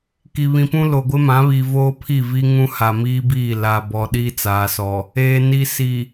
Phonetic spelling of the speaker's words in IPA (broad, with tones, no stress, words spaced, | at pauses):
ki˨βĩ˨pũ˦ lo˨ɡʷɪ˦mã˨˦βi˨ voː˦pʰi˦˨vi˦ŋũ˦ ha˨miː˦biː˦˨ la˨bɔ˨ ɗiː˦t͡saː˨sɔ˨ | eː˨ ni˨si˨